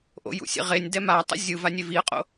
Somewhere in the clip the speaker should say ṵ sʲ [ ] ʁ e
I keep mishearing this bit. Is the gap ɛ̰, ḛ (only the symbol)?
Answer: ḛ